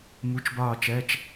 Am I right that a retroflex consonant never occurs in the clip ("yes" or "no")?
yes